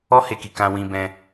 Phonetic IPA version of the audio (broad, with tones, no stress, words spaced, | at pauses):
ɔ˦he˧ki˨ kã˧wĩ˧bɛ̃˧